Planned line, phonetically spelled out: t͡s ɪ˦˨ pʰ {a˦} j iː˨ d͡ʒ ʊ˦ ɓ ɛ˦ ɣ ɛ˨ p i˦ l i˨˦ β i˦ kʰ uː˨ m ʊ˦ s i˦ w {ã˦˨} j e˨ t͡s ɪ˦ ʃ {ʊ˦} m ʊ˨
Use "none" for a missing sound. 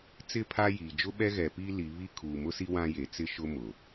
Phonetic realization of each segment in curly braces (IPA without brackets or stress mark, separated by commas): a˦, ã˦, ʊ˦